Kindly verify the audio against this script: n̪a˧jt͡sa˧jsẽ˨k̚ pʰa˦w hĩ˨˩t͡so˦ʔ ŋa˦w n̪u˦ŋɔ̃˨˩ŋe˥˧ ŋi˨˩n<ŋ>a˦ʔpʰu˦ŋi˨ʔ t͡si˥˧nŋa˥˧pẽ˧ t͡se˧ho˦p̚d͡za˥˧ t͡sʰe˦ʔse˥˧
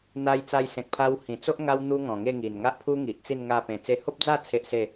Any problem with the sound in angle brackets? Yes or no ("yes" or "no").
no